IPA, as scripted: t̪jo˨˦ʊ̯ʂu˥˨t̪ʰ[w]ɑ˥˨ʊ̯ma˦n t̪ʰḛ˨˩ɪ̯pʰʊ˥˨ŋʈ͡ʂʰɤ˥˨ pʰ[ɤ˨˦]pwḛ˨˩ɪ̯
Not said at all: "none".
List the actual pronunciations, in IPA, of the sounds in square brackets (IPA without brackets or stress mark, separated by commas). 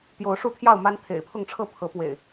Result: j, ɤ˨˦